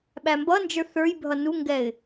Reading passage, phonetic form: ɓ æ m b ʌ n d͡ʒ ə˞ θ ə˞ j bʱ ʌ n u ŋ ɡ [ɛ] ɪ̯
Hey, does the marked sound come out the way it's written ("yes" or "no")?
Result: yes